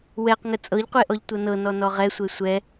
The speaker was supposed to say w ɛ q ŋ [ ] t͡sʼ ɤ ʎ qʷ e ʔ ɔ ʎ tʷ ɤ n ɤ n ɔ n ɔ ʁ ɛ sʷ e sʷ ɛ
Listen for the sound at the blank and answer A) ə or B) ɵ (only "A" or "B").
A